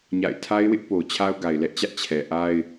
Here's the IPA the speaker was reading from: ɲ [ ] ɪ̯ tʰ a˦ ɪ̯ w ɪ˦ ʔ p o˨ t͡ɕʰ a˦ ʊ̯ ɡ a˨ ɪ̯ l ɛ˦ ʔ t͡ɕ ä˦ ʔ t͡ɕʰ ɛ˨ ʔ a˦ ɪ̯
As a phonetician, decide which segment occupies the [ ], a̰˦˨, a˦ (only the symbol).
a̰˦˨